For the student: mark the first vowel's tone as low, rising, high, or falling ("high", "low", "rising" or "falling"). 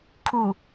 low